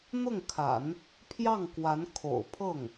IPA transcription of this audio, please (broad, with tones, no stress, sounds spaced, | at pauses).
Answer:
n̪ ʊ˥˩ ŋ kʰ a̰˨˩˦ n | pʰ j ɑ˥˩ ŋ k w a˧˥ n kʰ o̰˨˩ ʊ̯ pʰ ɤ˥˩ ŋ